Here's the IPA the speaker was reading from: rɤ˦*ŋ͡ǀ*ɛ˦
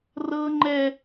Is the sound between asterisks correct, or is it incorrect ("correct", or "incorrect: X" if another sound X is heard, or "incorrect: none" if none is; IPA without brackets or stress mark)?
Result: incorrect: ŋ͡ǃ